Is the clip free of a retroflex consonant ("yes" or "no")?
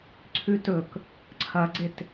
yes